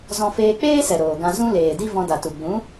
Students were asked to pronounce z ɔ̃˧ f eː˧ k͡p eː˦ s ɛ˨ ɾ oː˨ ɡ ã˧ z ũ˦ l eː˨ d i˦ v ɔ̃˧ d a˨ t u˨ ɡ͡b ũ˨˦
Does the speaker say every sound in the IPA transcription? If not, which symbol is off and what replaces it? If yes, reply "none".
none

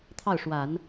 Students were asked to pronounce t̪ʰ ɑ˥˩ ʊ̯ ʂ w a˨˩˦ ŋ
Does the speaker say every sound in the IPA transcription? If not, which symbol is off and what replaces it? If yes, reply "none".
ŋ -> n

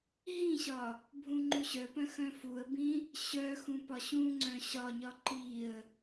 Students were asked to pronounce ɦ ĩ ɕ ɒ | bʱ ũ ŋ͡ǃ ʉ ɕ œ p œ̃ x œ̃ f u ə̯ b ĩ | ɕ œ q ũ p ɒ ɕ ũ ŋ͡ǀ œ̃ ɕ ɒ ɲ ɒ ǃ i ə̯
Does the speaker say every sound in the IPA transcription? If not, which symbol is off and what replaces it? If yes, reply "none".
q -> x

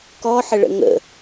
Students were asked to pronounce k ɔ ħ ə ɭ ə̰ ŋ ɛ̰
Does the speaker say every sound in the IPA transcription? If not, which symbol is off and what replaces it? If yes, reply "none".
ɛ̰ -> ə̰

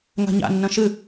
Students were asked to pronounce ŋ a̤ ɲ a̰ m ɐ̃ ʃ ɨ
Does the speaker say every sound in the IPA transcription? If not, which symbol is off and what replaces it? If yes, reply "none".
m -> nː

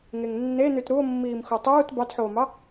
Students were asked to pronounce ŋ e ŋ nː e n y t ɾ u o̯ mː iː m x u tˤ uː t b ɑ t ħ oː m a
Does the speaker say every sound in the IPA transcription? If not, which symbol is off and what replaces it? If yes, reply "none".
a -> ɑ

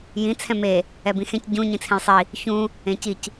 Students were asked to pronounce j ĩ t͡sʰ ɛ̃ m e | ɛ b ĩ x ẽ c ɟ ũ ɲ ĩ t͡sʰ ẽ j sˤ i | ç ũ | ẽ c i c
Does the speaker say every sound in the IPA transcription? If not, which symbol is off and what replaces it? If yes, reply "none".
none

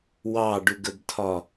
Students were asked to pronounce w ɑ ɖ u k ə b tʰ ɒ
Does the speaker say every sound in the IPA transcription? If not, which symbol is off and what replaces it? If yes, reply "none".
k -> ɡ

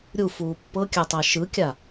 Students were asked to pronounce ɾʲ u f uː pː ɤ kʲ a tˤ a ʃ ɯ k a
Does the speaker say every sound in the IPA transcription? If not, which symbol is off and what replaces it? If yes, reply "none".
k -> kʲ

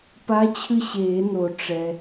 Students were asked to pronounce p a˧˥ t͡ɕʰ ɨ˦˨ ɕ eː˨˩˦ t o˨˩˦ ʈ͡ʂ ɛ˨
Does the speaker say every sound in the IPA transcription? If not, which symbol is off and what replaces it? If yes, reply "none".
t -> n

